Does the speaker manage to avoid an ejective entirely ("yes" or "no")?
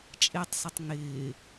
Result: no